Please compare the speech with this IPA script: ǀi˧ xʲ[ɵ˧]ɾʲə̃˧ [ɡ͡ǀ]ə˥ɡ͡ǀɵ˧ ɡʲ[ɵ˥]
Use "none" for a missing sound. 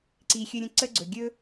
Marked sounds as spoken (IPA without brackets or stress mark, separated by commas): ɵ˧, ǀ, ɵ˥